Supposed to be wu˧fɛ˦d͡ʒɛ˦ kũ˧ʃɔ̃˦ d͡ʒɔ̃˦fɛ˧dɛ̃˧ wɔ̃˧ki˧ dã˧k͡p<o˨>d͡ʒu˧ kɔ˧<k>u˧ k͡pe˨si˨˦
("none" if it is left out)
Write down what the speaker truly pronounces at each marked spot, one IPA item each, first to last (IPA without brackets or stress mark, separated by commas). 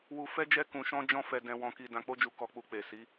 o˦, k͡p